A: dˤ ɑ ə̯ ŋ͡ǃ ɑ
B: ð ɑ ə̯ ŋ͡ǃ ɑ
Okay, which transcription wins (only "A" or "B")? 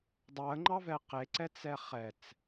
A